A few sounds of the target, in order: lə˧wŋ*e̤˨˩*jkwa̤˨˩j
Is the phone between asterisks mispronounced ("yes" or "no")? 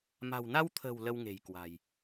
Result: no